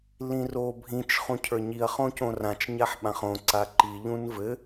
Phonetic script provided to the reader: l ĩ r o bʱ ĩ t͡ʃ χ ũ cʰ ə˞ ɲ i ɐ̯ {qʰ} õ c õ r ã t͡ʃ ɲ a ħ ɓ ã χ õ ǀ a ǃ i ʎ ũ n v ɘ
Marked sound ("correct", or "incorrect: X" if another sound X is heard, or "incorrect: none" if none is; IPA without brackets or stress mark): incorrect: χ